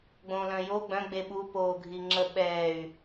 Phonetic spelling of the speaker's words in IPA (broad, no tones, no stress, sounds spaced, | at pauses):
ɡ͡b õ l œ̃ j o ɡ͡b œ̃ ɡ͡b e ɓ u p oː ɡʱ i ŋ͡ǁ ə ɓ ɛː y̯